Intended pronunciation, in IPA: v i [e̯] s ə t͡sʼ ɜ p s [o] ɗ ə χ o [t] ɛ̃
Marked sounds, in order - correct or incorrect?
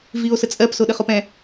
incorrect: o̯, correct, incorrect: p

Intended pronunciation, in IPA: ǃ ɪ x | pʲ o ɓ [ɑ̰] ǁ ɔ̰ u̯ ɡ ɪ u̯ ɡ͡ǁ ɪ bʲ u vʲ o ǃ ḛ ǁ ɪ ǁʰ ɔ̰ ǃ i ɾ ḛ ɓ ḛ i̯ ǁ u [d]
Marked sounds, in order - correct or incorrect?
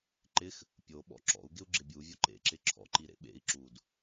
incorrect: ɔ̰, correct

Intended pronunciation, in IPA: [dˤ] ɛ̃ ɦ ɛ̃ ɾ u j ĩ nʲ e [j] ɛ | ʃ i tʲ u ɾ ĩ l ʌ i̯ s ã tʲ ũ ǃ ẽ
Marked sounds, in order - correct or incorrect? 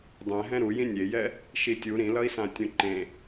correct, correct

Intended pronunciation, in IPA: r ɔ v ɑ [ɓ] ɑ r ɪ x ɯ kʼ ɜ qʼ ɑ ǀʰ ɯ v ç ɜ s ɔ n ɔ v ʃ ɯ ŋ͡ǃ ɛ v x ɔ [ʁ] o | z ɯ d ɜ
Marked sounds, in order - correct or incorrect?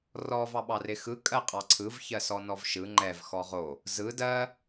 correct, correct

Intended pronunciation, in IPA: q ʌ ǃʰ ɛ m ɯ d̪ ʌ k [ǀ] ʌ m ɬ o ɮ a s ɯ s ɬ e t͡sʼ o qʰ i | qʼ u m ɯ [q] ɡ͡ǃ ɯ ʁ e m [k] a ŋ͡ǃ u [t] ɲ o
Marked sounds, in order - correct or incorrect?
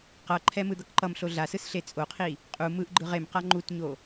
incorrect: ǃ, incorrect: ʔ, incorrect: q, correct

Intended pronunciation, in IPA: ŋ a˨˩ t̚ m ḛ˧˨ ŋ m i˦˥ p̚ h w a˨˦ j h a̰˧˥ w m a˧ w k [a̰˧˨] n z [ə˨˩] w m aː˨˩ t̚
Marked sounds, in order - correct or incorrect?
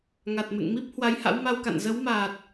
correct, incorrect: ə˨˦

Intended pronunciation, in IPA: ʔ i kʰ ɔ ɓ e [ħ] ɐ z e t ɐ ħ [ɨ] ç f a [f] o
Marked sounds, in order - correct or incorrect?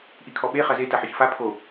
incorrect: χ, correct, incorrect: pʰ

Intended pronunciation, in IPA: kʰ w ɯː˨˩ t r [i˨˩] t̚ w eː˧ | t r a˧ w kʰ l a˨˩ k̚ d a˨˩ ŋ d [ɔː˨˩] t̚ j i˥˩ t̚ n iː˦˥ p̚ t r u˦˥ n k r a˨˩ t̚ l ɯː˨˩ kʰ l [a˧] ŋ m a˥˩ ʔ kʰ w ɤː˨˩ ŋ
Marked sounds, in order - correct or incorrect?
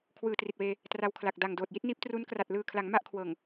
correct, incorrect: oː˨˩, incorrect: a˩˦

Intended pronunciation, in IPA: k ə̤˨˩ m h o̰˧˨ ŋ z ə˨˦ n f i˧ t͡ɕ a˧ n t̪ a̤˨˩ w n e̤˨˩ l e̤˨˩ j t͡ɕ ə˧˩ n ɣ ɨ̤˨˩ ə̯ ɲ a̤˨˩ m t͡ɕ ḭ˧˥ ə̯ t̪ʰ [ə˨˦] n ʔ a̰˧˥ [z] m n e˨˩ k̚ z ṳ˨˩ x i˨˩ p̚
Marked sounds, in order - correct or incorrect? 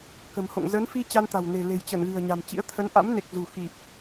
correct, incorrect: none

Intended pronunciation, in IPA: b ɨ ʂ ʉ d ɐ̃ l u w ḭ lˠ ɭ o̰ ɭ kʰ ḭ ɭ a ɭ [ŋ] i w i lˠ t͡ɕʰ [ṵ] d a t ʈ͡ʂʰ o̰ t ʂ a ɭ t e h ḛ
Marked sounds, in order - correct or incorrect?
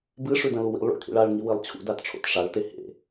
correct, correct

